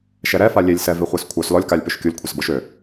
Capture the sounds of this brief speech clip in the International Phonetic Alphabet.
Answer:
ʃ ɛ ɾ ɛ f a lʲ e lʲ s ɛ v e χʷ e s kʷʰ œ s l ɔ lʲ k a lʲ p ø ʃ kʲ o lʲ kʷʰ ɛ s b ɔ ʃ ø

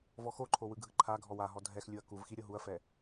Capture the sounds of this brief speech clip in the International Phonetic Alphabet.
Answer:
v ɔ x o ǃʰ o w ɯ ɡʱ ɯ ǃʰ a ɡʱ ɔ w a ɦ ɔ dʱ ɛ x lʲ u ɐ̯ k u v x i ɾʲ ɤ ɦ u ɐ̯ f ɛ

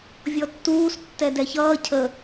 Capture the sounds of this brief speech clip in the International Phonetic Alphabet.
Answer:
vʲ ɔ tː uː s tː ɛ d ɛ ç ʌː cʰ ə

